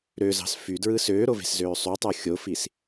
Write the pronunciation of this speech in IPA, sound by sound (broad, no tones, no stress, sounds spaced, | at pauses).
ɾ ø z ɑ̤ s f y d ɹ ɯ s øː ɾ o v e̤ s z øː sˤ u tˤ o xʲ o f i s